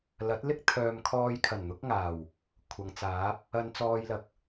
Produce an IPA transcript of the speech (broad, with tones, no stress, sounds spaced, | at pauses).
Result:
l ɐ˨˥ t̚ l ɪ˥ k̚ t̪ʰ œː˨ m kʰ ɔː˧ j kʰ ɐ˨˩ n n̪ ʊ˨˥ k̚ ŋ aː˨˩ w | kʷʰ ɐ˨˧ ŋ t͡s aː˨˥ p̚ | ɐ˧ n t͡s ɔː˧ j l ɐ˨ k̚